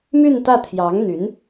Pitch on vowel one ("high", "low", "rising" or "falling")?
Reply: falling